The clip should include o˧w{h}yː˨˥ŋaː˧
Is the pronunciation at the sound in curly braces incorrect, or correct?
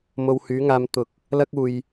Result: correct